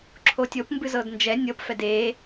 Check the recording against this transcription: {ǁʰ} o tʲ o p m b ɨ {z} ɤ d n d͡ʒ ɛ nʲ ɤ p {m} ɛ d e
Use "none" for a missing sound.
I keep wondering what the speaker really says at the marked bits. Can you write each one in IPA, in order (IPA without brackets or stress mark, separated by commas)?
ǁʰ, z, f